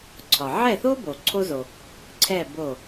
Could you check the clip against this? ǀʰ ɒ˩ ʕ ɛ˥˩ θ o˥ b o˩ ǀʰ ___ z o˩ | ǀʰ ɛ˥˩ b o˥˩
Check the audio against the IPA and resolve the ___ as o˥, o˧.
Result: o˥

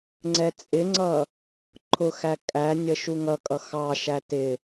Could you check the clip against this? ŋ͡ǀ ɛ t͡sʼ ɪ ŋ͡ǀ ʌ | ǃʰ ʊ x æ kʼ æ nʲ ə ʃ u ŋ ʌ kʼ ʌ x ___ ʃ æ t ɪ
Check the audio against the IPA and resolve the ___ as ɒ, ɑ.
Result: ɑ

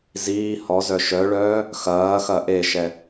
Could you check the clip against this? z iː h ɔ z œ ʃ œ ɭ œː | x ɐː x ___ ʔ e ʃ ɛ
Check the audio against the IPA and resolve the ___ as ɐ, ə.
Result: ɐ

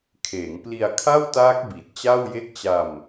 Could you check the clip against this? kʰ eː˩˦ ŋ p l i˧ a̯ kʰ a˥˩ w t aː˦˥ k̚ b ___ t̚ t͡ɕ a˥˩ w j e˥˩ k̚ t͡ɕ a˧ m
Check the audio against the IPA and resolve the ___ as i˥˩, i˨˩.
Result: i˨˩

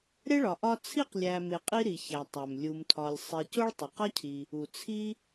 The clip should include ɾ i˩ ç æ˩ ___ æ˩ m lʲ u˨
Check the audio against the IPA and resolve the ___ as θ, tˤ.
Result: tˤ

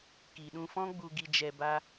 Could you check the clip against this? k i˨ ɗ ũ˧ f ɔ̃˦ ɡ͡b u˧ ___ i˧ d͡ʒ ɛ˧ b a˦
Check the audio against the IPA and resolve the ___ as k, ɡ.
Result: ɡ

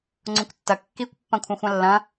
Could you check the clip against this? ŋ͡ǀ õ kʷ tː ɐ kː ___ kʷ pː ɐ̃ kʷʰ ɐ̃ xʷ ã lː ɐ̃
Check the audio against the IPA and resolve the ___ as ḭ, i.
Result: i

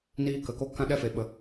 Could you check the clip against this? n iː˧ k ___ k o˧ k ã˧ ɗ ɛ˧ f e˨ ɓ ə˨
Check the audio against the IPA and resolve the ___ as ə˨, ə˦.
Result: ə˨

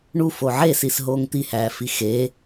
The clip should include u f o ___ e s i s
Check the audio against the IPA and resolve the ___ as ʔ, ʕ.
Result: ʕ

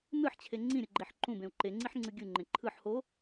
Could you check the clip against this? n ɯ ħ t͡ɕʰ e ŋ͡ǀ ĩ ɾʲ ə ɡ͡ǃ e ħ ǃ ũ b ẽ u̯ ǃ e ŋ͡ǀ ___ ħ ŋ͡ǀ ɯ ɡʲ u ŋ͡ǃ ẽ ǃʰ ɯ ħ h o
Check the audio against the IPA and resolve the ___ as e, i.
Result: i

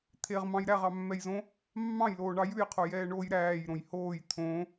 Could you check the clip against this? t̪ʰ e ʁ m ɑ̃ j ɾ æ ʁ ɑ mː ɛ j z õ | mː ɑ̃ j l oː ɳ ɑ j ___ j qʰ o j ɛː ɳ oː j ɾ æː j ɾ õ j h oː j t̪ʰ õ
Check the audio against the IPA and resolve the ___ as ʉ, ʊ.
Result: ʉ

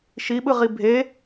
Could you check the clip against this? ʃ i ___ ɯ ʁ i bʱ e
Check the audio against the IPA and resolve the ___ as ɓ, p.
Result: ɓ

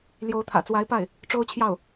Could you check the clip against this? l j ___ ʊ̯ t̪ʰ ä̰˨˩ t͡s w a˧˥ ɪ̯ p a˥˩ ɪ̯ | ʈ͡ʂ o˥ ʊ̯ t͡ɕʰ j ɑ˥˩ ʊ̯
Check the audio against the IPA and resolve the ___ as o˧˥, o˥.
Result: o˧˥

